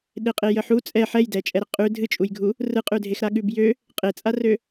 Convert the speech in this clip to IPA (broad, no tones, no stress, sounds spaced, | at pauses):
ɗ e qʼ e j ə ħ u t͡sʼ ɛ ħ ɛ j d ɛ t͡ʃʼ ɛ ɾ ə qʼ ʉ dʱ ɨ t͡ʃʼ u j ɡʱ u | r ɯ qʼ ʉ dʱ e x ɾ a ɠ ʉ b j ø | qʼ e t͡sʼ a r ø